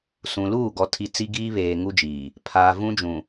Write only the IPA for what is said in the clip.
sũ˨luː˦˨ ɡɔ˨tʰi˨ t͡si˦ɡiː˦βeː˨ ŋu˦d͡ʒiː˨ | pʰaː˨vũ˦d͡ʒũ˨

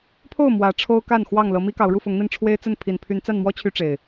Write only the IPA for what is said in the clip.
pʰo˥˨ʊ̯ mwä˨˦ ʈ͡ʂʰo˦ʊ̯ ka˥˨nxwɑ˥˨ŋ lɤ˨˦mi˦kɑ˨˦ʊ̯ ɻu˥˨fʊ˨˦ŋn̪i˧n ʈ͡ʂʰwe˦ɪ̯t͡sə˥˨n pʰi˨˩npʰy˨˦nt͡sa˥˨nmwɔ˦ t͡ɕʰy˦ʈ͡ʂe˨˩ɪ̯

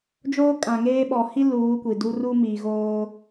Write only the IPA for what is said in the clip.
d͡ʒoː˦kʼã˨ŋeː˦ ɓɔ˨hi˦ luː˨˦kʷi˨du˦ ru˦mi˨ɣoː˦

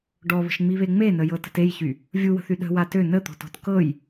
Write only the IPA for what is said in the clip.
ɖɔβə̤ʃŋ͡miβe ŋ͡menəjɤtə̤t ejçy | vʲuwə̤θy ɗə̤wa tø nət̪ɔ̤tɔ̤t kɤj

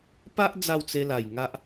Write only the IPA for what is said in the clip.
pa˦ʔ d͡za˥˧wt͡se˧la˨˩jŋa˦ʔ

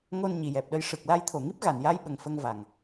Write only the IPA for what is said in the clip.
ŋo˧nɲi˨˩˨jɛ˨˩p̚ɗə˧j ʂɨ˨˩k̚la˧jt̪ʰo˨˩ŋi˦˥p̚ ɣa˨˩˨nja˧jɓə˨˩ŋ fə˧ŋva˨˩ŋ

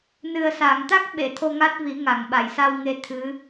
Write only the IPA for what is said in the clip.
nɨ˨˩ə̯sa˨˩˨ŋt̪a˦˥k̚ ɓe˨˩˨t̪ʰo˧ŋa˦˥t̚ vi˨˩˦ŋa˨˩˨ŋɓa˨˩˨j sa˧wŋe˧ t̪ʰɨ˧˥

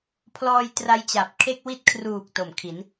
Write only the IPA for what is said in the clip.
pʰlɔː˧j tra˦˥jt͡ɕa˨˩p̚ kʰe˥˩k̚wi˥˩t̚ kʰruː˨˩k̚ to˨˩mkʰi˩˦n

